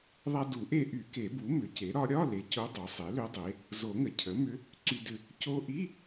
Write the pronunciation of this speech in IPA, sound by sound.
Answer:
ðˤ a˧ d u˨˩˦ ʔ e˧ ʔ y˨˩˦ k e˨˩˦ b u˩˥ m ʏ˩˥ c e˩˥ ɾ ɒ˧˥ ɾʲ ɒ˧˥˧ l e˩˥ c o˧˥ dˤ o˩˥ sˤ e˩˥ l ʏ˧˥ dˤ e˩˥ | z o˨˩˦ ŋ ə˩ cʰ ə˩˥ m ʏ˧˥ | ǀ y˧ d ʏ˧ | c o˧ ʔ i˧˥˧

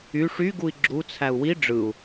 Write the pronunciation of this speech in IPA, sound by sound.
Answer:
y ʂ y ɡ u i̯ ɡ͡ǁ u t͡sʰ æ u̯ w i ɖ͡ʐ ɯ u̯

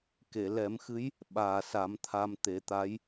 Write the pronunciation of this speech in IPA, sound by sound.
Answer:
k e˨˩˨ l ɛ˨˩˦ m x ɨ˧˥ j | ɓ aː˨˩ s a˨˩˦ m t̪ʰ a˧ m t̪ e˨˩˦ t̪ a˧˥ j

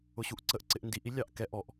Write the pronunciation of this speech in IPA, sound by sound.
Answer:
ʊ ɕ u ʔ ǀ ə ʔ ǀ ɪ ʔ n d i ʔ i lʲ ɑ ʔ k ɛ ʔ ɔ ʔ

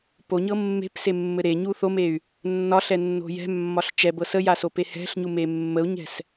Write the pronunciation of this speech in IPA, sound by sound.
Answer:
p o ɲ ɤ mː e̤ p s e mː ɘ ɾ e ɲ u θ o m e y̯ | nː ɒ ɬ ɛ nː o̤ j ɛ̤ mː ɒ ɬ t͡ʃ ɛ b ɤ s ə j a s o p e h ɛ̤ ɬ ɲ u m e mː ə u̯ ɲ ɛ̤ s

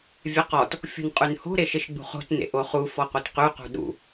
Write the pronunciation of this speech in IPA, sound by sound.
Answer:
vʲ ɛ q ɔ t | fʲ ṳ n qʼ ʉ n h o̤ ɾ e ʃ e ʃ ɡ͡b ṳ χ o̤ t n ḛ ʔ o χ u f ɔ qʷ ɛ t q ʉ q ṳ ɗ ṵ

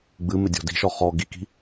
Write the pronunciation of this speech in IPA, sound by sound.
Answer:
ɡ͡b ɨ m ɪ dʲ ɔ̤ d i̤ ʃ ɔ χ ɔ ɡ i k i̤

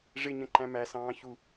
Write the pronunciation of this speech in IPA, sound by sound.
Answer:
ʐ ɪ ɲ ə̃ ǃ æ̃ m æ s ɑ̃ː ç u

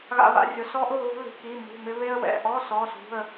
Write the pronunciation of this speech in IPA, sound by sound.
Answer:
ɣ a̰˥ β a̰˥ rʲ ʊ˧˥˧ s ɔ˥ ʔ ʊ˧˥˧ ɣ ṳ˥ l i̤˧˥˧ k i˧˥˧ m ṳ˧˥˧ m ɪ˥ β e˥ ə̯ w ɛ̰˧˥˧ ʔ ɔ˧˥˧ s ɔ˧˥˧ s ṳ˧˥˧ ə̯

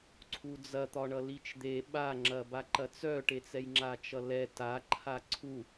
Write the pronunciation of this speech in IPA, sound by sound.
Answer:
ǀʰ u d͡z ɐ t̪ ɒ ɳ ʌ l i t͡ʃ d̪ e ɓ a ŋ͡ǁ ɐ b a ǃ ɐ t͡s œ ʈ e t͡s ɛ j ŋ͡ǁ a t͡ʃ ʌ l ɛ t a ǃʰ a ǀʰ u

